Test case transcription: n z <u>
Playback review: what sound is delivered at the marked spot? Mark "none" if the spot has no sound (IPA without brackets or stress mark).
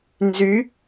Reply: y